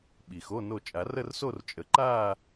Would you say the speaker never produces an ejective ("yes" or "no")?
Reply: no